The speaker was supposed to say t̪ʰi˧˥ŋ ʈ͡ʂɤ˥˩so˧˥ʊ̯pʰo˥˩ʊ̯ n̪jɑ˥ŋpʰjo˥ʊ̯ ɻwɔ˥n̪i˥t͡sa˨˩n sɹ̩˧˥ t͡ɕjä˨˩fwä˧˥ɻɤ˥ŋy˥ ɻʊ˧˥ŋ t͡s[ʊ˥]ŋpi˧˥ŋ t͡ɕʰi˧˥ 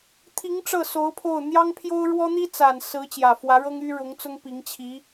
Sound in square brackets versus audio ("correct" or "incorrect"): correct